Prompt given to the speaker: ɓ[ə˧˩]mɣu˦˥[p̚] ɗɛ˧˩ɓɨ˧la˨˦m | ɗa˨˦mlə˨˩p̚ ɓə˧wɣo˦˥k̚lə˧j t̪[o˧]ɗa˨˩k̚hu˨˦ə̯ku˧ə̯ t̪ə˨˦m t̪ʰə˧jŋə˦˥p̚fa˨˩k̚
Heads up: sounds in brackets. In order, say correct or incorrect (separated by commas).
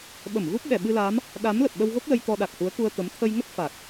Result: correct, correct, incorrect